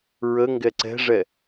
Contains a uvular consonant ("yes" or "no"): no